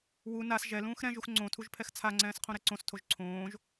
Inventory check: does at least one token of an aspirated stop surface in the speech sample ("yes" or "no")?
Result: yes